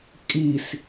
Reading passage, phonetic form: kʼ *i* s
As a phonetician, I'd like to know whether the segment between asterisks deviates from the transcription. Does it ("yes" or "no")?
no